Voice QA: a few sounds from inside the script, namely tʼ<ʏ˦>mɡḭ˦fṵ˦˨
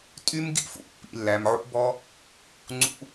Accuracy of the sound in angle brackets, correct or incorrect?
incorrect: y˦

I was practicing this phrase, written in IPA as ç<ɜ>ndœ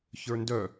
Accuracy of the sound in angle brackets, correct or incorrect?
incorrect: ə˞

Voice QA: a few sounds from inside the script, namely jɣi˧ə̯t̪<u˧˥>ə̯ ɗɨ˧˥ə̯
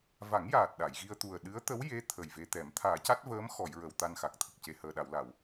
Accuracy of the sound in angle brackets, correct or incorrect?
incorrect: u˨˩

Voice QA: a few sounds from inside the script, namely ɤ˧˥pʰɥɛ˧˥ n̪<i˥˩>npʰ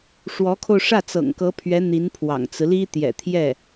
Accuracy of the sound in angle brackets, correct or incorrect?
incorrect: i˧˥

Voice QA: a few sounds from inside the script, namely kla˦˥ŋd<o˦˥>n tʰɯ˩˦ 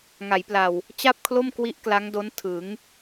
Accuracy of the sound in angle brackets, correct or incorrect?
correct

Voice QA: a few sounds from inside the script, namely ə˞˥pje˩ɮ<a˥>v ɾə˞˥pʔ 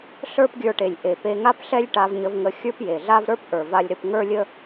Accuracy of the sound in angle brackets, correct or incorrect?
correct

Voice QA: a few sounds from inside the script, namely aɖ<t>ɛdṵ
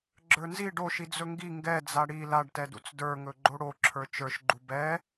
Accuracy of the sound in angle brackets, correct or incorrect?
correct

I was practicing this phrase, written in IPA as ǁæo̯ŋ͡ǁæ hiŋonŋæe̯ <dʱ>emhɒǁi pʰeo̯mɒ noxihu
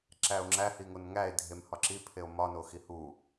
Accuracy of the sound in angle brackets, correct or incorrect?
correct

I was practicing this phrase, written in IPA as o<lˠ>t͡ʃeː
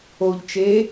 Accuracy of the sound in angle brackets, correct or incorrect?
incorrect: ʎ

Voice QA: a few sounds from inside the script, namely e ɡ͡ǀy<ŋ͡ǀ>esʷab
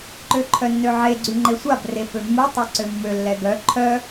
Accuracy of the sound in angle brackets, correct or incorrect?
incorrect: ŋ͡ǃ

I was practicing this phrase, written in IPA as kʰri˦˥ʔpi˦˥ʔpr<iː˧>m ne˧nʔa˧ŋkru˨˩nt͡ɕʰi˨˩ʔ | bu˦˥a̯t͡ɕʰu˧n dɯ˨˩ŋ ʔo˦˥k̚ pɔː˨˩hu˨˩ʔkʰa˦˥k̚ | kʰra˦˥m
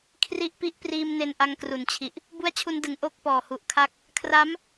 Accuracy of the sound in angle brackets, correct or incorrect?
correct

